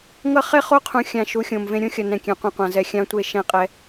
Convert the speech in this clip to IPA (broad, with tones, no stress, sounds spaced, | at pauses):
ŋ ʌ˦ χ e˦ χ o˦ qʰ ũ˨ xʲ ã˨ ʃ u˨˦ xʲ õ˨ m v ẽ˦ ɾʲ õ˦ xʲ ʌ˨ n ɛ̃˨ kʲ ɛ̃˨ qʷ ĩ˨ qʷ ã˨ z ɛ˨ xʲ ã˦ tʷ e˦˨ ʃ ɛ̃˦ qʼ ɛ˦